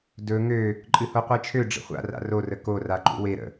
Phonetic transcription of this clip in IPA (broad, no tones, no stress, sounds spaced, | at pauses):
d ɵ ŋ ø | ǃʼ ɨ h o qʷ e t͡ʃʰ ø ɖ͡ʐ ə̰ χʷ a̰ r a̰ r o r ə k o r a ǃ ṵ w e ɾ ə̰